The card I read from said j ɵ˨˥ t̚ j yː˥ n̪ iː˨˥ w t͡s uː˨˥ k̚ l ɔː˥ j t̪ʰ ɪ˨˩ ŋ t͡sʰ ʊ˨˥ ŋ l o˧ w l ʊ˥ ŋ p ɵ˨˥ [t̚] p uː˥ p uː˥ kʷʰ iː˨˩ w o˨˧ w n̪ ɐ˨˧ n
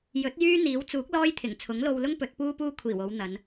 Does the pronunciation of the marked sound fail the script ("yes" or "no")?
no